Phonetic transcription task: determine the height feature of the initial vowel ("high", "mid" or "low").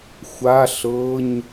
low